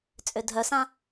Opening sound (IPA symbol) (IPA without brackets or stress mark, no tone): t͡sʼ